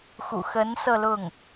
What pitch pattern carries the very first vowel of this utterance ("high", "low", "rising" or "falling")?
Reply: low